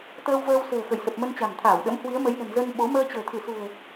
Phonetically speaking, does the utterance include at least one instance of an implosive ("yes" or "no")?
yes